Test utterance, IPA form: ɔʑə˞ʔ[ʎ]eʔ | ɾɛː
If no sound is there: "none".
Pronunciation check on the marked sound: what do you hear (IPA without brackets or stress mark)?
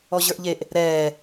ʎ